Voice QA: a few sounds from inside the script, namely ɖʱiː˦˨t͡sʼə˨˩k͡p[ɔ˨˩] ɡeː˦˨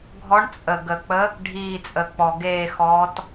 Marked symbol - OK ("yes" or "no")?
yes